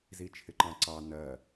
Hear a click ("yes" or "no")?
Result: yes